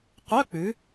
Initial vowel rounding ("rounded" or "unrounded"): rounded